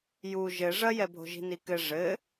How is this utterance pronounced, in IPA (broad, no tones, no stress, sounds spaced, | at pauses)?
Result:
j u ʒ ɘ ʐ ɐ j ɛ bʱ o̤ ʒ i̤ n i k ɘ ʐ ɘ